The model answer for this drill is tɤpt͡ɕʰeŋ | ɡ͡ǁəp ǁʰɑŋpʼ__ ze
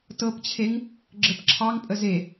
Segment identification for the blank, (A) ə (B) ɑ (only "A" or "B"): A